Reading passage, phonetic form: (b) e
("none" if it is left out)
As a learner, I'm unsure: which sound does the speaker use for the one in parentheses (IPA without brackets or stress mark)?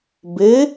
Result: b